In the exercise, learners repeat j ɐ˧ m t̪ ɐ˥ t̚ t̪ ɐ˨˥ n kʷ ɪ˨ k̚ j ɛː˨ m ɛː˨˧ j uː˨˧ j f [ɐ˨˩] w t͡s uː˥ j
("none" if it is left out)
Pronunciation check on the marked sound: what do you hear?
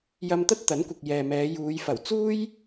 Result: ɐ˨˩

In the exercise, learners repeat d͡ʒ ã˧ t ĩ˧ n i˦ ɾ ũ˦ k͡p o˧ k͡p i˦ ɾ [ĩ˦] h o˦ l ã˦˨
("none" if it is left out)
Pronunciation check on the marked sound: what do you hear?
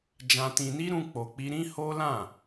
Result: ĩ˦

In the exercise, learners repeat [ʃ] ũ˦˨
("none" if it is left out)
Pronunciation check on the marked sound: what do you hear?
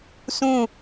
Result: s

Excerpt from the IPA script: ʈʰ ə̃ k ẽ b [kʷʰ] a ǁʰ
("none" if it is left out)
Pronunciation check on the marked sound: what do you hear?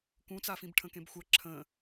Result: xʷ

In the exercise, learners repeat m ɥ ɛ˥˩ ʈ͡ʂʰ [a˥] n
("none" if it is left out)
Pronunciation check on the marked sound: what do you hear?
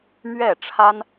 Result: a˥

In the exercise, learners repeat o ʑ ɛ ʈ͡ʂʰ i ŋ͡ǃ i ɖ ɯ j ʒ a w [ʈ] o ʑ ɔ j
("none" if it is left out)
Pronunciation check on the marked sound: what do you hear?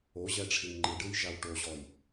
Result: ʈ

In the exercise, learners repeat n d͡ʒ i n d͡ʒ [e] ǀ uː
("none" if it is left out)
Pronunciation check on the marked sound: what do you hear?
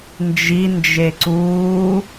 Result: e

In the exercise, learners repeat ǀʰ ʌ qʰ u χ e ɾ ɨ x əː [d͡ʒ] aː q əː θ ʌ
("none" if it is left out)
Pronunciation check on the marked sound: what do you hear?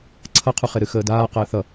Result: d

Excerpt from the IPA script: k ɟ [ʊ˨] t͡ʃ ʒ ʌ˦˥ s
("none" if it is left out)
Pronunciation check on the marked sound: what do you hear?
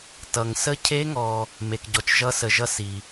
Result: ɔ˨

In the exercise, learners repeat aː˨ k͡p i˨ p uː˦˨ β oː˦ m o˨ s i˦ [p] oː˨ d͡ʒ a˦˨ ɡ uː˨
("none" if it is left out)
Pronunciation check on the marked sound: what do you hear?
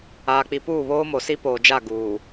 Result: p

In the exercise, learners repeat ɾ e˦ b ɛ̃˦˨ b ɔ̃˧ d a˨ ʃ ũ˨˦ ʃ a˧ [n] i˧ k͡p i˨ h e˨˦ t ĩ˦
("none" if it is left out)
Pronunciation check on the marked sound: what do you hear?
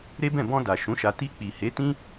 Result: t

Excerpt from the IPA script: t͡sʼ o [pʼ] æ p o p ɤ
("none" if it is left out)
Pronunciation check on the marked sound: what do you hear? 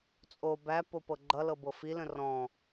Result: b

